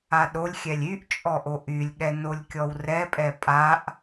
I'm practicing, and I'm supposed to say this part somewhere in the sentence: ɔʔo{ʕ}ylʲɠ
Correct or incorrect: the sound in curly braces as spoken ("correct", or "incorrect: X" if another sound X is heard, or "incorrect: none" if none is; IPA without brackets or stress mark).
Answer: incorrect: ʔ